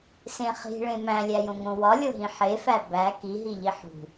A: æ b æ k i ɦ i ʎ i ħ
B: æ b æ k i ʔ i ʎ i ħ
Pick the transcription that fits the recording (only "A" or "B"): A